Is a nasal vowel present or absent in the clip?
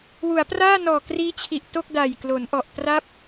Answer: absent